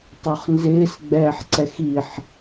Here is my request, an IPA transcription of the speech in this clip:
tˤ o χ n z ɪː s ɡ͡b ɛː ħ ǀ ɛ x i ħ

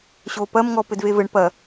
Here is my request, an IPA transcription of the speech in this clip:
ɕ o p ɐ m ŋ ɔ p ɘ d v e v ɘ ɳ p ɐ

